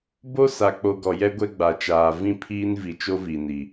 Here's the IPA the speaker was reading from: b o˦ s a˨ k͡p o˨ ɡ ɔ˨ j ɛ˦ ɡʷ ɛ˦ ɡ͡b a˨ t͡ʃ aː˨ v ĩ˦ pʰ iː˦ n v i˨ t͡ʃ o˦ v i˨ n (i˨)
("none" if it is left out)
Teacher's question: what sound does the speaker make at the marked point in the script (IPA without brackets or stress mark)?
i˨